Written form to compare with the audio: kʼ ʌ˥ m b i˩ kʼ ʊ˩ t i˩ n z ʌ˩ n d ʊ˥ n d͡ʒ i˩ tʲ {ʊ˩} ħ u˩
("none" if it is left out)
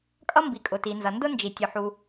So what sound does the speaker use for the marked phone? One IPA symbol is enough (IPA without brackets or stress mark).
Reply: ʊ˩